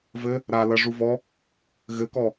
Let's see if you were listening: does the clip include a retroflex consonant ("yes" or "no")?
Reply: yes